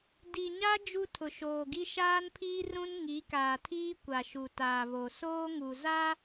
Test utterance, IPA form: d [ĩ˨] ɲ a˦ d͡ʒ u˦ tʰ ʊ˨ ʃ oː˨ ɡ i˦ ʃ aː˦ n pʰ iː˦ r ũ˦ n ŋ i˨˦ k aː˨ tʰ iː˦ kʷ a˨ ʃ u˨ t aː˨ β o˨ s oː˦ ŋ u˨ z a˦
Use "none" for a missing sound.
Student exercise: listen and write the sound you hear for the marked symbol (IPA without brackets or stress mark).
i˨